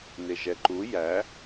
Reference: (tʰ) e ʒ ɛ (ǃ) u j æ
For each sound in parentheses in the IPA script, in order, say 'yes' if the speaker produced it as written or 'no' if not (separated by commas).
no, yes